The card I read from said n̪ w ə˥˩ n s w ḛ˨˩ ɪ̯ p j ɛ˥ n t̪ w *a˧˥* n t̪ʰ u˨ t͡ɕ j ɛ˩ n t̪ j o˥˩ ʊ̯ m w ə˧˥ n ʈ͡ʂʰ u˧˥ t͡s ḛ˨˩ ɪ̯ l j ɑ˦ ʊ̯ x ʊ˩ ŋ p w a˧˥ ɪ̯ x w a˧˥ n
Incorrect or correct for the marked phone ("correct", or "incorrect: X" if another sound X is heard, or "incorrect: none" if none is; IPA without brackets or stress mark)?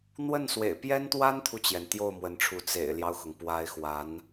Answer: incorrect: a˥